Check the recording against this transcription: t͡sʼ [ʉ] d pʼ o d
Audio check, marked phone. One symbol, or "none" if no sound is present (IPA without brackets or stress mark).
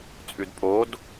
ʉ